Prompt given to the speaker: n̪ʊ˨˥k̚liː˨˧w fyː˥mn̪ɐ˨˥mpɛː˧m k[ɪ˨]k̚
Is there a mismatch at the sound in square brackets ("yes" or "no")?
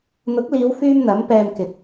no